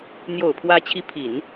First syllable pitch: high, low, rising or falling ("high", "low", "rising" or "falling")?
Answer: low